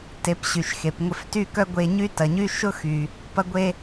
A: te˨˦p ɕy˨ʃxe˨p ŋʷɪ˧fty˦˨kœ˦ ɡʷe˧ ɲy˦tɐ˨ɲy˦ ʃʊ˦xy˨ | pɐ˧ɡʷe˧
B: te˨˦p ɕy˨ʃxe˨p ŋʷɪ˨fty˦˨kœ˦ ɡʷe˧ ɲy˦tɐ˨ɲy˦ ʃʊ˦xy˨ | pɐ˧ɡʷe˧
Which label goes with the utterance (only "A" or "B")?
A